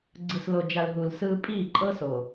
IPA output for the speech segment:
ɡ͡ǀɯ˨slo˨d͡ʒa˨l ɦu˨lsɯː˦ pʼiː˦˨ǃʼɤː˦s o˨

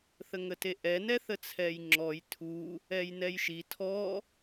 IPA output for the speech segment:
θəŋəteʔɛ nɛθət͡sʰɛjŋ͡ǁɔj tʰu | ɛjnɛjʃi tʰɔ

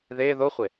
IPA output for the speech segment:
ðe ðoχʷe

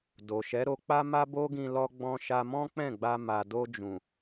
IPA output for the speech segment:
do˨ʃɛ˨˦ ɾo˧k͡pa˦ ma˦bo˦ɡĩ˧ lɔ˧ɡ͡bɔ̃˧ ʃa˧mɔ̃˦k͡pɛ̃˦˨ɡ͡ba˧ ma˨do˧ d͡ʒũ˨

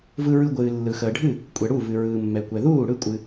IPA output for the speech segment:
vɯ˧ɹɯ˧ɡʷɨː˩ lːɯ˩xəː˩ɖʱɨ˥˩ | kʷʼɛ˩ɽu˥˩vɨ˩ɹɯː˩ mːɛ˩kʷɛ˩ðuː˥˩ ɽɯ˥˩kʷʼɨ˩

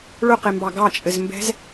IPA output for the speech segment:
ɭʊqembɑ ɡɑt͡ʃʼɘzmbɛ̤z

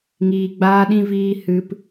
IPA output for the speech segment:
ŋiː˧ɡ͡baː˦ɗĩ˦viː˦ hɨ˧p

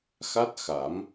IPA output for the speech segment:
xa˦˥t̚xa˨˩˦m

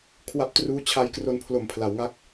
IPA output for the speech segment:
kʰwa˦˥p̚truː˦˥t͡ɕʰa˧jkro˧n pʰlo˨˩mpʰla˩˦wŋa˦˥k̚

